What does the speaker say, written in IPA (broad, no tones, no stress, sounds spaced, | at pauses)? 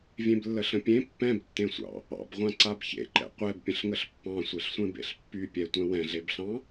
vʲ ẽ b lː ə ɬ ə̃ pʲ ẽ pː ɛ̃ b tː ẽ sʷ ɑ̰ | ɑ̰ b ʁʷ ã ǀ a b ç ḛ ǃ ɛ̰ qʷ ɛ b pʲ ə̃ ɬ ŋ ə ɬ pː ɑ̃ sʷ e ɬ sʷ ẽ b ḛ ɬ pː y pʲ ɛ tʷ ɛ̃ w ɛ̃ ɮ e b ɬ ɑ̃